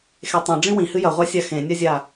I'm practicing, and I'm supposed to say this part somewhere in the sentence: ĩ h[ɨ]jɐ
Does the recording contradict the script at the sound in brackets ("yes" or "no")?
no